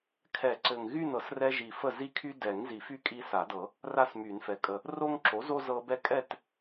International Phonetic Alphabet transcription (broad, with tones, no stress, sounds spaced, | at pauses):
kʰ ɛ˨˩˦ ǀ ɘ˨˩ ŋ ɣ y˥˨ n ɤ˩˥ s r ɛ˦ ʒ i˨˩ f ə˥˨ z i˦ kʰ y˦ d ɛ˨˩˦ ŋ z i˨˩˦ f y˥˨ kʼ i˦ s a˨˩˦ d ɤ˨˩˦ | r a˥˨ s m y˨˩˦ n f ɛ˩˥ kʼ ə˨˩ | r o˦ ŋ ǁ o˩˥ z o˦ z ɤ˦ b ɛ˦ kʼ ɛ˥˨ t